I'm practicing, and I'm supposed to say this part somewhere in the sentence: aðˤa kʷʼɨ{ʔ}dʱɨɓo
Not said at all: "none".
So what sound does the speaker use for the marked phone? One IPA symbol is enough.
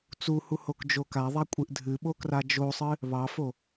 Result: ʔ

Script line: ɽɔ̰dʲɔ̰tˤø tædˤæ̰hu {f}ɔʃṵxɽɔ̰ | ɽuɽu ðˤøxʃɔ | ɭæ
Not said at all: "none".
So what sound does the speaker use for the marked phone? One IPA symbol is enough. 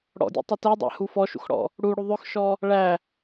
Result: f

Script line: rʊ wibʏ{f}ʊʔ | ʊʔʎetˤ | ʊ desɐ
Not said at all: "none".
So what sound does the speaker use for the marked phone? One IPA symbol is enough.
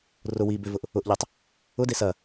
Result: v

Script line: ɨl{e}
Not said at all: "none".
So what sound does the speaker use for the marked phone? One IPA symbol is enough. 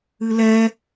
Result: ɛ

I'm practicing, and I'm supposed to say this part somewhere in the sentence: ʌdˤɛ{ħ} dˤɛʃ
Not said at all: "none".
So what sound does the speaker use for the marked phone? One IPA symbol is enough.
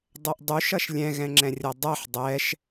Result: ħ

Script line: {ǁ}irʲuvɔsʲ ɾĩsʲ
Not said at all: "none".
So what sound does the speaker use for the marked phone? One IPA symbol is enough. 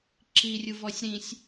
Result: ǁ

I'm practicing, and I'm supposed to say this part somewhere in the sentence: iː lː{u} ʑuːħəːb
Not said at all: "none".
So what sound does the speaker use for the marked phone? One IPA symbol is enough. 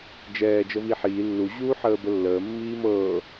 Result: u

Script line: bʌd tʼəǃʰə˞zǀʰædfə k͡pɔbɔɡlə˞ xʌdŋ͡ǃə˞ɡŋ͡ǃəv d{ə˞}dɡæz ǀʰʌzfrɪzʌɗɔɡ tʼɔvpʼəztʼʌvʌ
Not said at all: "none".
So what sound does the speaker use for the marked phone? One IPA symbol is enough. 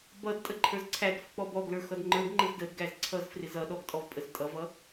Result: ə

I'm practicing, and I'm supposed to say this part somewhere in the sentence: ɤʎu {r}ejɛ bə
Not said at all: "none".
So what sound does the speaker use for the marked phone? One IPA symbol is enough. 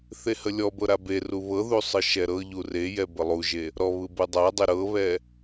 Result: r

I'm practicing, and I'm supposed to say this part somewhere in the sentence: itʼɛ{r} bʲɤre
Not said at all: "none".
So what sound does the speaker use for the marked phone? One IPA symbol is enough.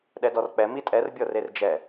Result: r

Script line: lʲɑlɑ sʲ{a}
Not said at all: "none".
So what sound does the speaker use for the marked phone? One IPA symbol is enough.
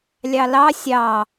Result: ɑ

